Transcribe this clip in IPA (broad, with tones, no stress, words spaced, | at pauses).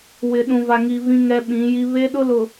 wɪ˨ɗũ˨va˨ŋi˨ vĩ˦ŋɛ˦ɓĩ˨˦ji˦ βe˦ ɗʊ˦lʊ˨